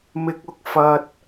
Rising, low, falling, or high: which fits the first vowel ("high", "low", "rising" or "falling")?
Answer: high